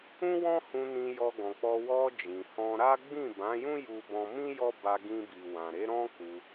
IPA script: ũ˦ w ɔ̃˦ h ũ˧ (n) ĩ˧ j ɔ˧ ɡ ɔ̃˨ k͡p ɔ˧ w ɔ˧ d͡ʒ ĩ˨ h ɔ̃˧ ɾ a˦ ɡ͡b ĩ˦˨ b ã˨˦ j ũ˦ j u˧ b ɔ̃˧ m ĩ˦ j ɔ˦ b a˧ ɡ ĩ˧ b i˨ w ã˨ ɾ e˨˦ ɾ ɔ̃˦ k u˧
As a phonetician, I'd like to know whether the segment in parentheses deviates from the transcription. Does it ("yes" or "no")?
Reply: no